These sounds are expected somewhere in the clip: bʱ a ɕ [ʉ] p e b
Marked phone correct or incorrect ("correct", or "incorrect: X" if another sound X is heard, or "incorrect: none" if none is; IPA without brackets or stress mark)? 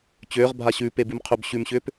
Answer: incorrect: ʉː